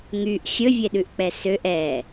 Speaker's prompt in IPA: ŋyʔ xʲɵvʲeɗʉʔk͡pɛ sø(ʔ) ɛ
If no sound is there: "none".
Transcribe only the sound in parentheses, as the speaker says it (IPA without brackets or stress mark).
ʔ